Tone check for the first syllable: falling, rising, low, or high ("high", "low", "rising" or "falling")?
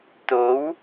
rising